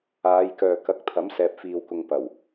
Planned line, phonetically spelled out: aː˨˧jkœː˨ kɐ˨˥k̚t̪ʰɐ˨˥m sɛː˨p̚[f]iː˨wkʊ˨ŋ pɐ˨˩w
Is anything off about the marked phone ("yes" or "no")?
no